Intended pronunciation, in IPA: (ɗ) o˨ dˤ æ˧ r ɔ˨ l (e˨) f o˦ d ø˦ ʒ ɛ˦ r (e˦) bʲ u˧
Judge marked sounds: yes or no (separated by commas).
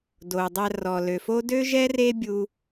no, no, yes